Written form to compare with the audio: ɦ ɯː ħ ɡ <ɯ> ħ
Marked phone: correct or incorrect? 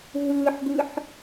correct